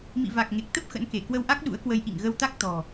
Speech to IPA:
mḭ˧˨va˨˩k̚ ŋe˨˩k̚t̪ə˦˥p̚ xə̰˧˥nke˧˩ kwə˧wʔa˦˥k̚ ɗṵ˧˥ə̯kwə˧j ʔḭ˧˨ŋɣə˧wt̪a˦˥k̚ t̪ɔ̤˨˩

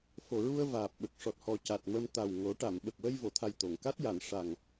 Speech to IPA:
fo˨˩ɹu˧ə̯ vaː˨˩p̚ɓə˨˩k̚ ʂɔ˨˩t̚hɔ˨˩ca˨˩t̚ mə˧m t̪a˨˩w ŋo˨˩˦ʈa˨˩˨m ɓə˨˩k̚wə˧j vo˨˩˨t̪ʰa˨˩j t̪o˨˩˨ŋka˦˥t̚ja˨˩˨n ʂa˨˩ŋ

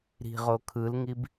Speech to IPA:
ɾi̤ ʁokʰɯlŋib

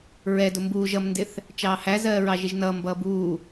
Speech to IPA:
ɹɛdʊ mbuːʒ ʌmndɪθ | t͡ʃɑːhæzɜː ɹɑʒɪʒnʌːmbʌː buː

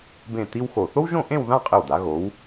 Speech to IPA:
bẽ˧˩ t̪i˥wxo˧˩ θo˥wʒõ˥˧ʔẽ˥˧wðã˥˧ qʼɪ˧˩wd̪a˩˧ ɣo˩˧w

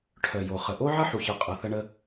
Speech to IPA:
ʈʰœ˩jo˩ χə˩ʔo˥ ʕʌ˥ħu˩çʌ˩ qʼʌ˩ θə˧ɳə˧

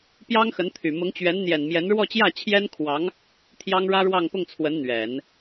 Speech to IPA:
pjɑ˥ŋxə˧˥nt̪ʰy˨˩ mʊ˧˥ŋt͡ɕɥɛ˧˥nn̪jɛ˨˩nmjɛ˧˥n ɻwɔ˥˧t͡ɕjä˥˩t͡ɕʰjɛ˥nkʰwɑ˧˥ŋ | t̪ʰjɑ˥ŋɻä˥ɻwɑ˥˧ŋ pʊ˥˩ŋt͡sʰwə˧˥n n̪ɥɛ˨˩˦n

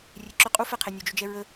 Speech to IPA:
rʲeǁʏ qʼufɛqʰe nʲod͡ʒʏd͡ʒɛ ɹə

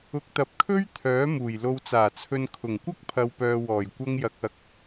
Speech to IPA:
ʊ˧k̚t̪ɐ˧p̚kʰɵ˥ɥ t̪ʰœː˨˥muː˨˩j lo˨wt͡saː˨˩t͡sʰɵ˨n kʰʊ˨˩ŋkʷɐ˥k̚pʰɐ˨wpœː˨ wɔː˨˩jkʷɐ˧ŋjɐ˨k̚ɐ˨k̚

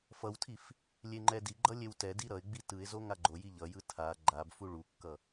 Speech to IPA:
fʌwtʰif | lʲeŋ͡ǃɛdiɡ͡ǃʌ lʲewtɛdi ɾʌɪ̯ɡ͡bi tɯɪ̯zo ŋaɡ͡ǃoji ʎʌjɯ tʰa ɡ͡ǃab fuɭukːʌ

